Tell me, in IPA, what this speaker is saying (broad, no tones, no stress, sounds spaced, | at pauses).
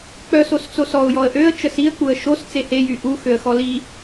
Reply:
k͡p œ s o s t͡s o s ɔ ʊ̯ j ɔ ə̯ ʔ ø ə̯ t͡ʃ ə s i ə̯ k͡p u ə̯ ʃ o s t͡s e h e j y ʔ u x ø ə̯ x ɔ l i